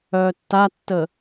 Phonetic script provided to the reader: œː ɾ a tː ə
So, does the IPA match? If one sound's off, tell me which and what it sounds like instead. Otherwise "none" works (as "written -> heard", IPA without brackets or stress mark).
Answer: ɾ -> tː